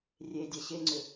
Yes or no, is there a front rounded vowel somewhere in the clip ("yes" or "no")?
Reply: yes